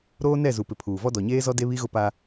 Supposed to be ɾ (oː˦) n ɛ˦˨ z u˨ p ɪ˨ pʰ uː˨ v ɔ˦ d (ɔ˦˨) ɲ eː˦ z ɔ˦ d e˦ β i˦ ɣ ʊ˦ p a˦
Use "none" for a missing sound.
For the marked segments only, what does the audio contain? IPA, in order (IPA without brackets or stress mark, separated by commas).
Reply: oː˦, ɔ˨